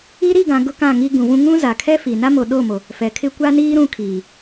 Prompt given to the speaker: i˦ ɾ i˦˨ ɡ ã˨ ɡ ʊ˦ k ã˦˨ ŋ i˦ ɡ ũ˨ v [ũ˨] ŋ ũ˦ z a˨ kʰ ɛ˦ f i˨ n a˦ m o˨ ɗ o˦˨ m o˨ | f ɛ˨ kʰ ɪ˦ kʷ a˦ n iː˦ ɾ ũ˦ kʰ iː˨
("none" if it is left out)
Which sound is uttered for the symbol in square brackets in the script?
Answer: ũ˦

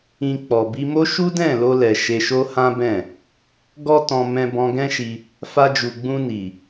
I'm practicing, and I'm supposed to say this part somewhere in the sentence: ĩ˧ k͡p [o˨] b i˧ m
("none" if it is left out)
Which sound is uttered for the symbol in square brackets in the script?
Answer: ɔ˨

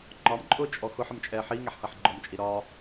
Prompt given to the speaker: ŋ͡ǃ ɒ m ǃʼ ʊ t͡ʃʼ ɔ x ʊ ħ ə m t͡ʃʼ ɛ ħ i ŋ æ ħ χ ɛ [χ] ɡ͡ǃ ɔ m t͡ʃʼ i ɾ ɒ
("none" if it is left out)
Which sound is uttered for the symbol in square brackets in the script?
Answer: ħ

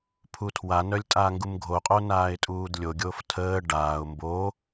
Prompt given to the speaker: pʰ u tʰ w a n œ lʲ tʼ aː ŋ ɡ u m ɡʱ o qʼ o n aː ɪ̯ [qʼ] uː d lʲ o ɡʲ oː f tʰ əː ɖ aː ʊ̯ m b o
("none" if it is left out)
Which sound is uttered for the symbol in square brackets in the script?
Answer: tʼ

